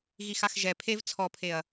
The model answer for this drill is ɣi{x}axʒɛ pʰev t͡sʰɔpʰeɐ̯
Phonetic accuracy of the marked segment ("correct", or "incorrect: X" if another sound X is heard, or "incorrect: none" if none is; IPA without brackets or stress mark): correct